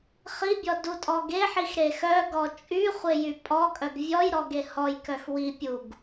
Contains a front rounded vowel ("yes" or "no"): yes